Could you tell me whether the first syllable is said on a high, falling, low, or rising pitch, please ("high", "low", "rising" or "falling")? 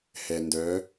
low